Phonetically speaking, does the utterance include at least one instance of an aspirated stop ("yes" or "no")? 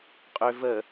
no